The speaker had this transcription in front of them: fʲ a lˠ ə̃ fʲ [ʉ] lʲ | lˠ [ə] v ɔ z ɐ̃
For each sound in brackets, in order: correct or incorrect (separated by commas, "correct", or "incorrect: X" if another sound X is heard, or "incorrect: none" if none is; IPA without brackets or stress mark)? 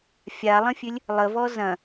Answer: correct, correct